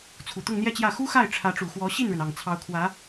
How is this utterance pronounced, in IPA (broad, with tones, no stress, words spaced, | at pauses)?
t͡sʰu˨˩t̪ʊ˥˧ŋn̪jɛ˥˧t͡ɕjä˥˩ xu˥xa˥˩ɪ̯ ʈ͡ʂʰä˧˥ʈ͡ʂu˨˩xwɔ˧˥ ɕi˥˩nɻə˩n ɑ˨˩ŋt͡sʰɑ˧˥ʊ̯kʰwä˧˥